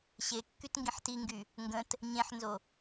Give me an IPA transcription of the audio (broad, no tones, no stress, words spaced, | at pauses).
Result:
ɕe kːytŋɡĩħtiŋɡy | ŋɡə̃t | ɲẽħnzo